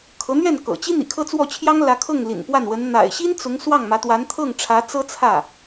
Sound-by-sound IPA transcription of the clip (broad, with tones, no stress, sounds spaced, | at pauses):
kʰ ɤ˧˥ n̪ ɥ ɛ˥˩ n k ɤ̰˨˩ t͡ɕ i˥ n̪ ḭ˨˩ kʰ ɤ˥˧ t͡s w ɔ˥˩ t͡ɕʰ j ɑ˥ ŋ l ä˧˥ kʰ ɤ˥˩ ŋ l ḭ˨˩ n p w a˥˩ n w ə˧˥ n n̪ a̰˨˩ ɪ̯ ɕ i˥ n t͡s ʊ˧˥ ŋ s w ɑ˥˩ ŋ m ä˧˥ t̪ w a˧˥ n t̪ʰ ɤ˥˩ ŋ ʈ͡ʂʰ ä˧˥ t͡s ɤ˥ t͡sʰ ä˥˩